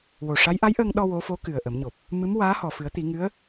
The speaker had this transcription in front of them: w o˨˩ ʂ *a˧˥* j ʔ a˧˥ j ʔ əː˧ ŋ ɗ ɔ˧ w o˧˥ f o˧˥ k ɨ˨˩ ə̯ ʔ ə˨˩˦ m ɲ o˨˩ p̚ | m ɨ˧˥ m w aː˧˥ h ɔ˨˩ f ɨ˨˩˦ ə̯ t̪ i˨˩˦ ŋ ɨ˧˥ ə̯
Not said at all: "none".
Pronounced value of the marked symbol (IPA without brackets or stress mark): a˧˥